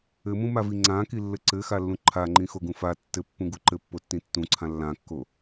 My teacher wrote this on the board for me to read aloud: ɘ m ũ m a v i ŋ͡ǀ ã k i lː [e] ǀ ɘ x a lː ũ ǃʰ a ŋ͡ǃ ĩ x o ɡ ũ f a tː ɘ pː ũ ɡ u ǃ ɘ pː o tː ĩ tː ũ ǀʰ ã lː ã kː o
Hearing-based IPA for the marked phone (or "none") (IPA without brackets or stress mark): ɘ